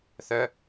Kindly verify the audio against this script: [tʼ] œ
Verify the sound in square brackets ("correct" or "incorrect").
incorrect